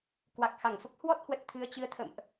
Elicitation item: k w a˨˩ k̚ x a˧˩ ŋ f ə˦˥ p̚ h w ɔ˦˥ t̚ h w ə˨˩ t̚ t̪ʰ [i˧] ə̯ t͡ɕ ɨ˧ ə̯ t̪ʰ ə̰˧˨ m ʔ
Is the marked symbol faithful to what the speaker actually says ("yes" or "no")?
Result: no